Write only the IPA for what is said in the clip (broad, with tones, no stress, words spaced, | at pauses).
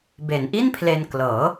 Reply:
be˩˦nʔi˥˩npʰle˧n klɤː˩˦